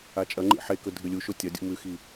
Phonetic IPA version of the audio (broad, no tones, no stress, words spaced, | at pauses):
at͡ʃʼɐŋ͡ǃḭ ħekɵ dʱɨlʲuʃo tʲɐdʲṵ mʉxi